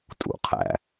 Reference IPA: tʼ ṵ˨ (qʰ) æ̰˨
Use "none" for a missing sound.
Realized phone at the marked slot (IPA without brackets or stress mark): qʰ